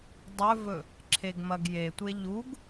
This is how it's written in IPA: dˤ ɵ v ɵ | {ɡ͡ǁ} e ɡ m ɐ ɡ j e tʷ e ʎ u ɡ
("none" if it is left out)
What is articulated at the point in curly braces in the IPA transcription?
ǁʰ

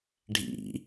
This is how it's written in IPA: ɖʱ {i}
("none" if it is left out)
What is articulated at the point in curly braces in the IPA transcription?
ḭ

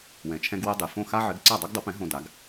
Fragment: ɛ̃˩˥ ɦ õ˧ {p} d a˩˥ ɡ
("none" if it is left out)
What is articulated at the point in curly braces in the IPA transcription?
none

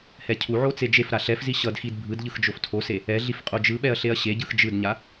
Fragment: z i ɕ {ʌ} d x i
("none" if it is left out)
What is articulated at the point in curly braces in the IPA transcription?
ʌ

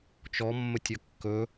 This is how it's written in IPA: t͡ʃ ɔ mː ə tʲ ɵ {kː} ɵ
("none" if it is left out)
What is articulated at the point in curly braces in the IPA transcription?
kː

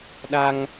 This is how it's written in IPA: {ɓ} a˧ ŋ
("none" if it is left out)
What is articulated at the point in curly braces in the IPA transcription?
ɗ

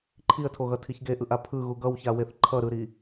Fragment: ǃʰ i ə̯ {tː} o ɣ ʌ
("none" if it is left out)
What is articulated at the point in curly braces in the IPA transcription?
tʰ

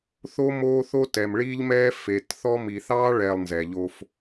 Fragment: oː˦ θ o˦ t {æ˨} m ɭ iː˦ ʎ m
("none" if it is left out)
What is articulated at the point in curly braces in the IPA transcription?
ɛ˨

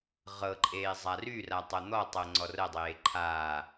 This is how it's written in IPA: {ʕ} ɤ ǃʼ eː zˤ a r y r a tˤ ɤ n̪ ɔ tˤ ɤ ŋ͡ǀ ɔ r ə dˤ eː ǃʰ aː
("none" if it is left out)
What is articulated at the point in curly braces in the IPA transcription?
ʁ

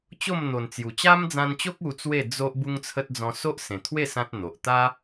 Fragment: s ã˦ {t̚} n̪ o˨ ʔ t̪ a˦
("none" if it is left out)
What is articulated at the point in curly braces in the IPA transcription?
t̚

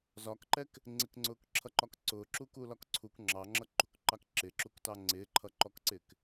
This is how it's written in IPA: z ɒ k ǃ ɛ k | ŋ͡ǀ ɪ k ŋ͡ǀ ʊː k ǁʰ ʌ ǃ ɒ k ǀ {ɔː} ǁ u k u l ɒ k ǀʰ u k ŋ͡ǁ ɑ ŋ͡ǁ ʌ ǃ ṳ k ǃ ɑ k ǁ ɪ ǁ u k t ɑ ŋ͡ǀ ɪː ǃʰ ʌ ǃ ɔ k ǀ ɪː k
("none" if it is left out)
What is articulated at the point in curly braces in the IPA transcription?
ʊː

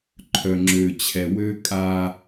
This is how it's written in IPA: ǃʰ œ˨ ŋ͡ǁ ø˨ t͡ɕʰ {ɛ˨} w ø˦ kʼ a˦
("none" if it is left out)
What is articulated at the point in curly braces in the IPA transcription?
ɛ˨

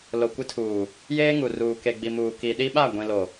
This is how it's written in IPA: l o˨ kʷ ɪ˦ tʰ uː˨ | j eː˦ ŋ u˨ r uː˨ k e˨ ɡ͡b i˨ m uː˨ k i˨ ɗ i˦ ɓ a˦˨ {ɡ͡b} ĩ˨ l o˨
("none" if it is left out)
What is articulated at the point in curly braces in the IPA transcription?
ɡʷ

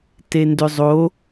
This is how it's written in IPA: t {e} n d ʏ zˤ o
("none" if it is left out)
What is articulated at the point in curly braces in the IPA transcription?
e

